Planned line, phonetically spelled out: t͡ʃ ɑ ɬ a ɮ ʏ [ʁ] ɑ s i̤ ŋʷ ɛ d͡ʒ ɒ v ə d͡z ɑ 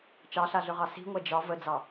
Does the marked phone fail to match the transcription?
no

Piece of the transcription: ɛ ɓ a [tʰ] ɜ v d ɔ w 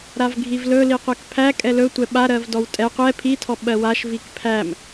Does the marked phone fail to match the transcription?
yes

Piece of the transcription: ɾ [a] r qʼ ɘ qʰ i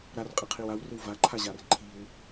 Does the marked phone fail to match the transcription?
no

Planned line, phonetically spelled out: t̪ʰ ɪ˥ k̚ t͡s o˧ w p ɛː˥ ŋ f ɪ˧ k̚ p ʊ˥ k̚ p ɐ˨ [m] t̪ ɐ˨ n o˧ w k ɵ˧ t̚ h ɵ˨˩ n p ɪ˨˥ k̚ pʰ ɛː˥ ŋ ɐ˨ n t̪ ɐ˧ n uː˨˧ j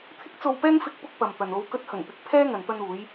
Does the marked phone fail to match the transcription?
no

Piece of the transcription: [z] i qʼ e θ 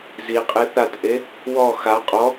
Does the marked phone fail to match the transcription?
no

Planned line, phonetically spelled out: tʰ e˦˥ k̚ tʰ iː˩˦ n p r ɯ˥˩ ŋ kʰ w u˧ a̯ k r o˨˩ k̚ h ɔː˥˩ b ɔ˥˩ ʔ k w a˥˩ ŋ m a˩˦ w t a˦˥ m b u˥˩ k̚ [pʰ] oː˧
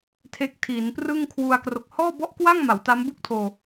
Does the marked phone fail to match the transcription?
yes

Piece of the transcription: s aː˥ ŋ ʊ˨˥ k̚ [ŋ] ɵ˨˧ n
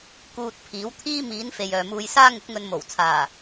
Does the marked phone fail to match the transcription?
no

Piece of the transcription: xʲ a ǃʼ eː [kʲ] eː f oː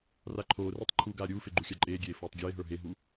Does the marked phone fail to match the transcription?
yes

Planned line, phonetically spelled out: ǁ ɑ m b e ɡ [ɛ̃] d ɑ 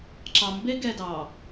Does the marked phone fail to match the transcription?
yes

